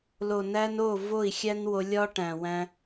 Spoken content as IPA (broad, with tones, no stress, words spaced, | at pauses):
lo˨næ˧n o˦˨ vo˦˨i̯xʲæ˦nwo˧lʲɒ˦ ʈæ̃˨wæ̃˧